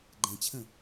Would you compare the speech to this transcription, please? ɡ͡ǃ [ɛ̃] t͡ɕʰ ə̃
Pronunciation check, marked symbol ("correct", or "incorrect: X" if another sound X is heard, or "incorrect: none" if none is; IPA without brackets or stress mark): correct